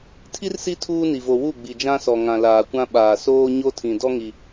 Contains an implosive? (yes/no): yes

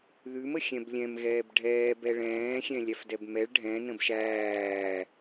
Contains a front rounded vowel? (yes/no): no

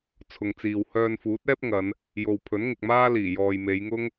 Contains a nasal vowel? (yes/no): no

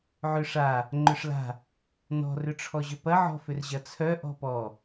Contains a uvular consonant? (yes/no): no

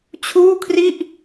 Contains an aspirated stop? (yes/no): yes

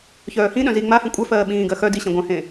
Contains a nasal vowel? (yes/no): yes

